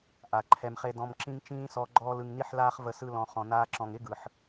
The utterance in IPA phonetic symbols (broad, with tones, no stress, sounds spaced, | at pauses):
ʔ a˨ ǃʰ ɛ˧ m χ e˦ d ɔ̃˧ m ǁ ĩ˦ ŋ t͡ʃ ĩː˦ s ɔ˧ ɡ͡ǃ ɔː˧ l ɯ˨ ŋ n i˧ ħ l aː˧ χ v ə˧ s ɯ˧ l ɔ̃˨ χ ɔ̃˨ n aː˧ ǁ ɔ̃˨ ŋ ɪ˦ ɡ ɯ˨ ħ